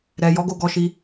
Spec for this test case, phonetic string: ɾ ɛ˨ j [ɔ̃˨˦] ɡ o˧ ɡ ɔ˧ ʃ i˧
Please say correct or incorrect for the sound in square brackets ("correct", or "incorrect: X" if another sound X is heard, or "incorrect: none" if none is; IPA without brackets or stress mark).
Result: incorrect: ɔ˨˦